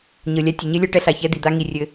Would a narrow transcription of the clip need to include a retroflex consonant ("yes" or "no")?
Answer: yes